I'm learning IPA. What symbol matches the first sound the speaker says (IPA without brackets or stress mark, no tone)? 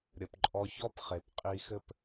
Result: ɾʲ